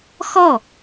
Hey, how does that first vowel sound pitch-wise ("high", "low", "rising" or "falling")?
falling